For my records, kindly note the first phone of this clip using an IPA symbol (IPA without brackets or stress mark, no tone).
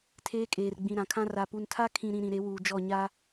tʰ